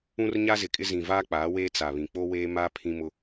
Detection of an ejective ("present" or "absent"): present